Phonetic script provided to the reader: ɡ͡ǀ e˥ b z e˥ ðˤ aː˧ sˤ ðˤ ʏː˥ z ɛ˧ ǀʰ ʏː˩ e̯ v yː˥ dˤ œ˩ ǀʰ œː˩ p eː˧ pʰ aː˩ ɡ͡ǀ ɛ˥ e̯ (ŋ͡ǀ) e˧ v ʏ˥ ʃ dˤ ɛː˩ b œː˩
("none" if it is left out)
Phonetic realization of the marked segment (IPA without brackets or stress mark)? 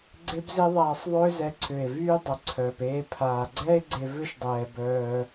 ɡ͡ǀ